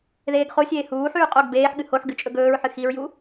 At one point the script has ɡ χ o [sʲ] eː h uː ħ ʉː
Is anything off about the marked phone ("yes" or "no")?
no